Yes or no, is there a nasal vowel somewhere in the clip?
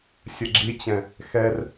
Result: yes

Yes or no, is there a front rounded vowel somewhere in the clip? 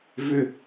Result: yes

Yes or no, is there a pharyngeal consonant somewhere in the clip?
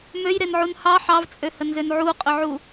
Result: yes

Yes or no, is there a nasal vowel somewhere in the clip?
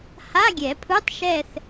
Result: no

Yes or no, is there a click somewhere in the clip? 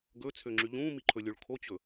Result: yes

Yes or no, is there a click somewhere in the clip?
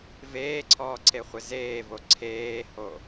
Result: yes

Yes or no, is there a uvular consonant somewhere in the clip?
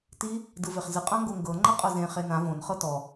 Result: yes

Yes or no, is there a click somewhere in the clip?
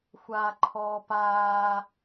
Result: yes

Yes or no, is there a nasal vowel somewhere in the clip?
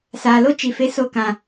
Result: yes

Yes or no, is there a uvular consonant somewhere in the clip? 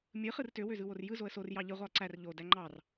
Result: yes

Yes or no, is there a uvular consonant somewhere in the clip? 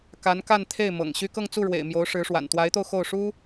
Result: no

